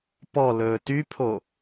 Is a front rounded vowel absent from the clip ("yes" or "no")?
no